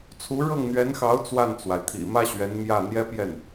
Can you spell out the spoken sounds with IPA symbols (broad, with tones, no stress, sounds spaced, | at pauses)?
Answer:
t͡sʰ u˧˥ ɻ ɤ˥˩ ŋ n̪ ɥ ɛ˧˥ n x ɑ˧˥ ʊ̯ t͡s w a˥˩ n t͡s w a˩ ɪ̯ t̪ʰ ḭ˨˩ m ä˥ ɕ ɥ ɛ˧˥ n m j ä˥˩ n̪ j ɛ˥ p j ɛ˥˩ n